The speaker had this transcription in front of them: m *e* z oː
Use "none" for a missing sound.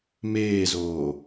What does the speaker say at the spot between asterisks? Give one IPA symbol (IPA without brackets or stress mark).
eː